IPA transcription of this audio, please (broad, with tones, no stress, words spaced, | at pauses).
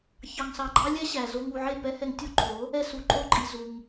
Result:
çɑ˧ŋsɑ˧ɡ͡ǃɑ˦ lʲɛ˦ɕæ˨ zo˧ŋ u˧ʕe˦˨ pɛ˦hɛ˧ŋtʲo˦ǃʰo˨˦ | ɛ˦su˨˦ǃʼo˦ǃʼi˧ zu˧ŋ